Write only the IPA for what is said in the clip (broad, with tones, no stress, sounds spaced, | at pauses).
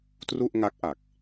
t r u˥˩ ʔ ŋ a˦˥ k̚ ʔ a˨˩ k̚